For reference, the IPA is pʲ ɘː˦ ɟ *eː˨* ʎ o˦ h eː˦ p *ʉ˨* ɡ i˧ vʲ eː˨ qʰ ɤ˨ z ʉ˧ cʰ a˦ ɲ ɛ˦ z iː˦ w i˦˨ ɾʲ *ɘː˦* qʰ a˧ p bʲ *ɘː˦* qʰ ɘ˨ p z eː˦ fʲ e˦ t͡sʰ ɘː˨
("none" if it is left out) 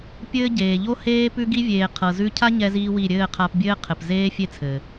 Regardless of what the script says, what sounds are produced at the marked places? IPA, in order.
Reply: eː˨, ʉ˧, ɘː˦˨, ɘː˦

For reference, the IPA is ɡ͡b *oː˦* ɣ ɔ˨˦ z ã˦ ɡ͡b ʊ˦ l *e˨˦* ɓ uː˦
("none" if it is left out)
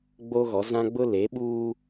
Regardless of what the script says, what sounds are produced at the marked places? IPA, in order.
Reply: o˦, e˨˦

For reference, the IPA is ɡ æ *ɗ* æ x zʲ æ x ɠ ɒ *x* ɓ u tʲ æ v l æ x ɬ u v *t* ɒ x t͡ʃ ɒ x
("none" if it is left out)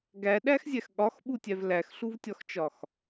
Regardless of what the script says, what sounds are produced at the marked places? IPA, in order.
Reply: ɗ, x, tʲ

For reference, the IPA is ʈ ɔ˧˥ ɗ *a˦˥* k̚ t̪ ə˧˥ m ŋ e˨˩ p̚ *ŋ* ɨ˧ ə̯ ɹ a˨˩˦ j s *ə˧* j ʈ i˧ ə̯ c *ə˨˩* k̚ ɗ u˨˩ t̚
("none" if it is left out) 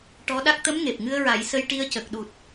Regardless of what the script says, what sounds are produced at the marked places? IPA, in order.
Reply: a˦˥, ŋ, ə˧, ə˨˩

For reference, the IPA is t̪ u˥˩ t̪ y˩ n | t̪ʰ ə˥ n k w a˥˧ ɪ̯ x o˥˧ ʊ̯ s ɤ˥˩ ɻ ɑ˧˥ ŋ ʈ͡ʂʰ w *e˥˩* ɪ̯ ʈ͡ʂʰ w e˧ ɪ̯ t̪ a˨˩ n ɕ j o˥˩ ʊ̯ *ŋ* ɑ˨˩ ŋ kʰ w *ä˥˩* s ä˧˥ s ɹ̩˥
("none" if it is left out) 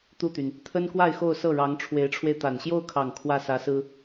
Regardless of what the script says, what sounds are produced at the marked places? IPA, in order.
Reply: e˧˥, kʰ, ä˥˩

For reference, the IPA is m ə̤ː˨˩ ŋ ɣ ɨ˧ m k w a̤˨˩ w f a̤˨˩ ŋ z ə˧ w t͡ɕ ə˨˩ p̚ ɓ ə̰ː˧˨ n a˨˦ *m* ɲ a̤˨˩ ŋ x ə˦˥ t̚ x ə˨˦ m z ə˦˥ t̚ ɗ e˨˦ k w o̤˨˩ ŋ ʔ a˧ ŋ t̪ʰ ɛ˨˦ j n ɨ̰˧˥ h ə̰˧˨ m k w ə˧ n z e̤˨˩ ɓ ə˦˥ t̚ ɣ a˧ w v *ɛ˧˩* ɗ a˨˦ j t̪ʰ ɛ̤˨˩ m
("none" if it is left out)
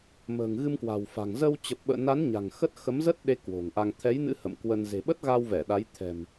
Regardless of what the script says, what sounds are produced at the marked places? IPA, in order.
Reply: n, ɛ˧˩

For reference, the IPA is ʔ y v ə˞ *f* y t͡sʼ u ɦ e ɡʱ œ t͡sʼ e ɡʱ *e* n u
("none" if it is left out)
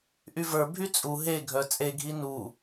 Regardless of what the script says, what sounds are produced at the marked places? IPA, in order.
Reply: bʱ, i

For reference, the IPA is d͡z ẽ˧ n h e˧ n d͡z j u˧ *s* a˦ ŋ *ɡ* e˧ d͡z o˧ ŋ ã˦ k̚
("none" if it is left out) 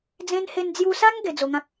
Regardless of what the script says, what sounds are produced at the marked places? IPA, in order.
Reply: s, ɡ

